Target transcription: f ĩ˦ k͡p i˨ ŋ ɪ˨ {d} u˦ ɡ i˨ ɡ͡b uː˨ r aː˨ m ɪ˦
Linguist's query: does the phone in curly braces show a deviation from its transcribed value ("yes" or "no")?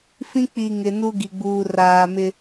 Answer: yes